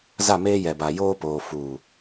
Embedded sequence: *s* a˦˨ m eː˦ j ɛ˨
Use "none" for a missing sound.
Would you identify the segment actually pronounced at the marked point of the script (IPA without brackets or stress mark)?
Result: z